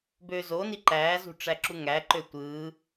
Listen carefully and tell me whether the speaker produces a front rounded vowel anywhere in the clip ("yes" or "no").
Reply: yes